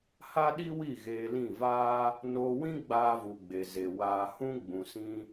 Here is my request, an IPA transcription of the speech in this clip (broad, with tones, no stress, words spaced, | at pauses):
ha˦ɗi˦wi˦˨ ɣeː˧lĩ˦˨vaː˦ | noː˧wĩ˦ɡ͡baː˧vu˨ ɡ͡be˨ze˨ waː˨hũ˧ ɡ͡bũ˨sĩ˧